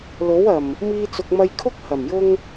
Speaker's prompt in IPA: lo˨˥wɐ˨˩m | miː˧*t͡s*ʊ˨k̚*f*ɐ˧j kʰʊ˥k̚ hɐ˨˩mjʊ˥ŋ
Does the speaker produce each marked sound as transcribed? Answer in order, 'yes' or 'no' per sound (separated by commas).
yes, no